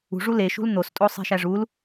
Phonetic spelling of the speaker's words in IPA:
ṳʐu leʃṳl n̪ostʼosˤi̤ʃæ ʐul

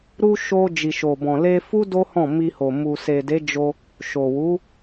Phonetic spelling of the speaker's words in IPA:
ɾu˧ ʃo˧ d͡ʒi˨ʃo˨bɔ̃˨ le˧fu˦ do˦hɔ̃˦˨ mi˧ho˨ mu˨se˨de˨˦d͡ʒo˧ | ʃo˨wu˨˦

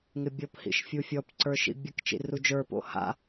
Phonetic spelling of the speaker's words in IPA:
ŋɪbʲɔp hḭʃfʲufʲɔp ǀə˞ʃḭbʲək t͡ʃḭrud͡ʒə˞ po̰ha̰

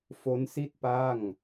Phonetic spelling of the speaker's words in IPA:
fo˦˥nsi˥˩t̚ pa˥˩ŋ

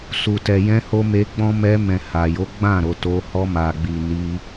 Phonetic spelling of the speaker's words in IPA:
su˨tɛ˨ jɛ̃˧ho˧ me˧ɡ͡bɔ̃˦ mɛ˧mɛ̃˨ ha˨jo˨˦ɡ͡bã˦˨ ɾo˨ to˧ hɔ˧ma˨ɡ͡bi˨ ni˧

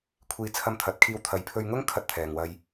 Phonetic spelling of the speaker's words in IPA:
kʷʰiː˧t͡sʰɐ˧mt̪ʰɐ˨˥t̚kʰiː˧w t̪ʰɐ˨˧jpʰɵ˧ɥŋʊ˥ŋ kʰɐ˧t̚t̪ʰɛː˨ŋwɐ˧j

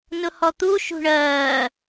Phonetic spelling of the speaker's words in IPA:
nʊhɔt̪u ʃṳɳɜː

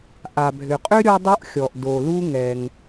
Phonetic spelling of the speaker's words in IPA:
ʔa˩bʱʏ˩qʼʏ˥ ɾʲɔ˥dˤu˥ʔxʲɔ˩ʔ do˩lu˥ŋɛ˩ŋ

